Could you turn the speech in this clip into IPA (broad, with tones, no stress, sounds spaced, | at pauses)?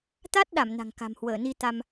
t̪ a˦˥ t̚ ɗ a˧˩ m n a̤˨˩ ŋ k a̤˨˩ m h w əː˧˩ n i˧ t̪ a˧ m